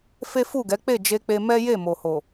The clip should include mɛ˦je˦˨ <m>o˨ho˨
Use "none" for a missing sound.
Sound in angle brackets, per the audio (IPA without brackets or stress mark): m